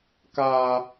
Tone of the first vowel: high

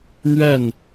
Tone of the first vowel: falling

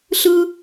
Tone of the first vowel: high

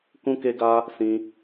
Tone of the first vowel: high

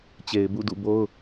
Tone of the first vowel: low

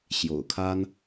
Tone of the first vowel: low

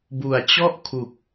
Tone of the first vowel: low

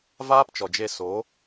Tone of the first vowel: high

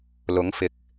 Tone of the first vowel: rising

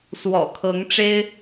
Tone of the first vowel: low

